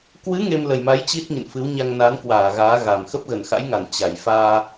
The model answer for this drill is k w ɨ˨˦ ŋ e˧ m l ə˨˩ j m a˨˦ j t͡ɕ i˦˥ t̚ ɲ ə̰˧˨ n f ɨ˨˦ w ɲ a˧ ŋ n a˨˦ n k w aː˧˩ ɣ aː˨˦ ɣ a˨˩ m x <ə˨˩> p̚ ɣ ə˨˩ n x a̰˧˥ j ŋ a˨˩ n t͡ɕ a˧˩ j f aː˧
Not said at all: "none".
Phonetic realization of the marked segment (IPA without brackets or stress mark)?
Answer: ə˦˥